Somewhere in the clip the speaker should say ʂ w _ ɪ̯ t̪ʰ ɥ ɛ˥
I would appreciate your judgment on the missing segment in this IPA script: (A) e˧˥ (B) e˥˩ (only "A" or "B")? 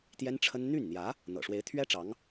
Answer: A